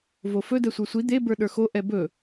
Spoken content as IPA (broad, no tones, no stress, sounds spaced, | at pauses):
v o f ɵ d ɛ sʷ ə˞ sʷ i d̪ e b ə˞ ɗ ə˞ x o ʔ ɛ b ɵ